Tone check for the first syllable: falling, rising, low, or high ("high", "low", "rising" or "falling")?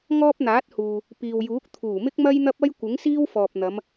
high